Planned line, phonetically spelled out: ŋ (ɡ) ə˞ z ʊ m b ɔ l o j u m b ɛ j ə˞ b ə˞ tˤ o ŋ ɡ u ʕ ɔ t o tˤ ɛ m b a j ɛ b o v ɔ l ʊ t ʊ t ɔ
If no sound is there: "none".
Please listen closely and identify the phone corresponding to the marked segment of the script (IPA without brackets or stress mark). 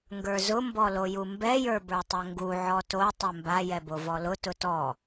ɡ